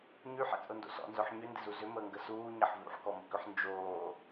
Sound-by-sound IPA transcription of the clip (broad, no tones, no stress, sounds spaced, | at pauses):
ɲ y ħ ɛ̰ t͡sʼ ʊ n d o̰ s ɔ̰ n z œ ħ ɲ ʏ n d ɪ z u z ʏ m əː ŋ ɡ ə s uː ɲ ɐ ħ v ṵ ħ k ɔ m ʊ k ʏ ħ n d͡ʒ oː